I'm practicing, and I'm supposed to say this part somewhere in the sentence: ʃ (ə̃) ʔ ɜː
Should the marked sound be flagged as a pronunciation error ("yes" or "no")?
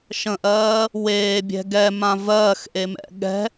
no